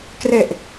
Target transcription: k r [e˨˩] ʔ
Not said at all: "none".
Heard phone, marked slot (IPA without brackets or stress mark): e˨˩